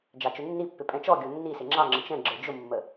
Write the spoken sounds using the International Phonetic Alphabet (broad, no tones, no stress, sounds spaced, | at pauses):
d͡ʒ ɑ t͡ʃ ʊ nː i pː ɪ pʼ ɛ̃ t͡ʃ ɔ ɡʲ ɔ nː i s ɪ ŋ͡ǁ ɑ ŋ͡ǁ ə̃ t͡ʃ ɛ̃ ɡ͡ǁ ə˞ d͡ʒ ʊ mː ə